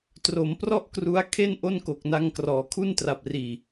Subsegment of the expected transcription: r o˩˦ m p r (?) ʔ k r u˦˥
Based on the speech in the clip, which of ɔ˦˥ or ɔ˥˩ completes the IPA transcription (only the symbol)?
ɔ˥˩